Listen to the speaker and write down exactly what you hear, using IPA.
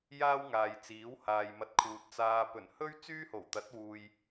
j aː˥ w ŋ aː˨ j t͡s iː˨˥ w h aː˨ j m ɐ˧ t̚ kʰ uː˨ t̚ t͡s aː˨ p ɵ˨˩ n h ɵ˥ ɥ t͡s yː˥ h o˨˩ w t̪ ɐ˨˥ t̚ w uː˨ j

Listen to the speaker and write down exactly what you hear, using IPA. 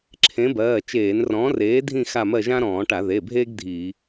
ǁʰ ẽ˨˥ b ɜː˩˧˩ t͡ʃ eː˧˩˧ n r ɔ̃ː˨˥ r eː˨˥ dʱ ĩ˥˧ x a˥˧ m ɜ˥˧ ʒ ã˥ ɾ ɔ̃ː˧˩˧ ʈ a˧˩˧ ð e˩˧˩ bʱ eː˥ ɡ dʱ iː˧˩˧

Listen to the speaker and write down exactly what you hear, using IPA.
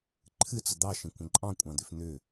ǃʰ ɨ t͡s ə d̪ ɑ ʃ ə̃ kʷ ə̃ ǃʼ ɑ̃ kʷʼ ɑ̃ d̪ ʏ f n̪ ʏ

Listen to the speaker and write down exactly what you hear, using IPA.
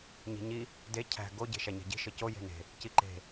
ɲ i̤ ɲ i | d e cʰ æ̤ ɡ o ɟ e̤ ʃ æ ɲ æ̤ ɟ i̤ ʃ ɘ c o j e̤ n e̤ | c i ǃ e̤

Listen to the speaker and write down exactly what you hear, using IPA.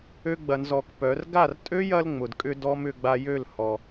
ø˧ ɡ͡b ɐ˧ n z ɔ˧ k p œ˨˦ r ɡ a˦˨ r tʼ ø˦ j ɐ˧ l ŋ͡m ʊ˨ d kʼ ʏ˧ d ɔ˦ m ʏ˧ ɡ͡b a˧ j ø˦˨ l h ɔ˨

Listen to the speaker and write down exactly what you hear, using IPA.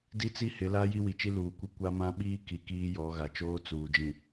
d i˦ t͡s i˦ h ɪ˨˦ l a˦ j i˦ w i˨ t͡ʃ i˦ l uː˨ kʷ i˦ kʷ a˦ m ã˦ ɓ iː˦ k i˨ k iː˦ j ɔ˨˦ ɣ a˨ t͡ʃ oː˦ t͡s uː˨ d͡ʒ ĩ˨

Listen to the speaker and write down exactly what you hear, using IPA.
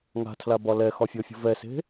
ŋ a̤ tʰ l a b ɒ l ɛ x ɒ fʲ ɔ fʲ ə̤ v ɛ s e̤

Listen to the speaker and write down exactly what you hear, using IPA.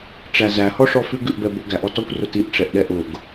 ʈ͡ʂ æ z æ h ɔ ʂ ɔ f ʉ ɡ ʉ ʔ b ɛ b ʊ ɡ æ ʔ ɔ t ɔ kʷ r ʊ t i ʔ ʈ͡ʂ ɛ ʔ ɗ ɛ ʔ ʊ ɡ

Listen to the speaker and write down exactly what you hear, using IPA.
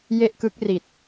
j e˥˩ ʔ k ɯ˦˥ k̚ r i˨˩ t̚

